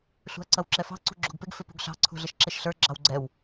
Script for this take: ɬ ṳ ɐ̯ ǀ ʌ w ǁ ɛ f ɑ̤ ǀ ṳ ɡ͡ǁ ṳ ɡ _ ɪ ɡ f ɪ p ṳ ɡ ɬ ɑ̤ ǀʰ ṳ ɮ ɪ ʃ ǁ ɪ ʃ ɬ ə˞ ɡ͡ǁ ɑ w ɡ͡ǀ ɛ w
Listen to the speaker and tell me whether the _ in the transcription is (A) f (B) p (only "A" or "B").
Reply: B